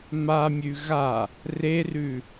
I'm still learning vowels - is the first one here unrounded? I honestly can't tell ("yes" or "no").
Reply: yes